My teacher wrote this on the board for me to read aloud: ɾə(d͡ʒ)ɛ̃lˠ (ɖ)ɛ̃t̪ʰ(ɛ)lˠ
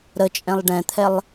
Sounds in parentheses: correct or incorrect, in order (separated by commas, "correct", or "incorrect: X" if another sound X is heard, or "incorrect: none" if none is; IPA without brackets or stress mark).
incorrect: t͡ʃʼ, correct, correct